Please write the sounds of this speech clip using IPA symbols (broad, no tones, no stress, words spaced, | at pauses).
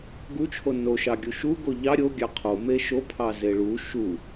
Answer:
ɡut͡ʃʰo no ʃɑɡʲuʃuɡo ʎɑ ɾʲo ɡʲɑqʰo meʃo pʰɑzeɭu ʃu